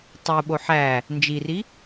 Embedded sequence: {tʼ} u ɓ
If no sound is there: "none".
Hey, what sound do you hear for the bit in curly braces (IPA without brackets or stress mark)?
tˤ